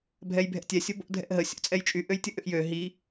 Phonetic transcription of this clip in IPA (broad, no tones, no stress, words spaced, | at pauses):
bʱɛjbʱɛ̰tʲɛ sʲobo̰ dʱɛ̰ʔɦə sʲo̰t͡sʼɛjt͡ʃʼy ʔøjtʲəʔʏʔjø ɦi